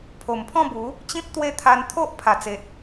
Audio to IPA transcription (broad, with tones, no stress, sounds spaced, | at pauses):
pʰ o˨˩ m pʰ ɔ̃˥˧ b u˨˦ | t͡ɕ ĩ˦ p̚ t̪ w e˦ t̪ʰ a˧ n t̪ʰ o˦ ʔ pʰ a˨˩ t͡s e˨ t̚